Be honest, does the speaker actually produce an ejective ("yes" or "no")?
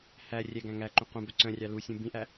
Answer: no